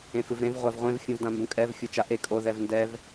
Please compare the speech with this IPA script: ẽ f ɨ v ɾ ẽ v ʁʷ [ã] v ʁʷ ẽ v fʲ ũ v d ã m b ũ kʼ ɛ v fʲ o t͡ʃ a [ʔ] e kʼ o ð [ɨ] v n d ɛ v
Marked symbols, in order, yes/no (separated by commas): no, yes, no